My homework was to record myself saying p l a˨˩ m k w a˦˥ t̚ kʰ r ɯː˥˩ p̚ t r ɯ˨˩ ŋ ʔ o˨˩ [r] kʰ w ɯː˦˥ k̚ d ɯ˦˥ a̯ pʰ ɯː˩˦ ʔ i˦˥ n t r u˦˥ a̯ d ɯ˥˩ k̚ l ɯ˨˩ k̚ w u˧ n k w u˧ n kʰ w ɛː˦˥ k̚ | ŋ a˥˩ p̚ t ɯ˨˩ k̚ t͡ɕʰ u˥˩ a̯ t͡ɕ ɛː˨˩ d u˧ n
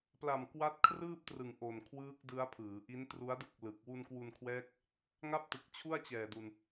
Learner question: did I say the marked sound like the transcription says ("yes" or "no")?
no